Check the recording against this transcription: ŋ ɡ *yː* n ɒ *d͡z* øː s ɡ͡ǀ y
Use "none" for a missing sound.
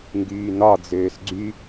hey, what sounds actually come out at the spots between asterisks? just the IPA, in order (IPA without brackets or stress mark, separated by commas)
yː, d͡z